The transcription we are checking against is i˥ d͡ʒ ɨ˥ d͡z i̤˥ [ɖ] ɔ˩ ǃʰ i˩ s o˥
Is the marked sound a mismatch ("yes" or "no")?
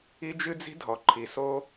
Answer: yes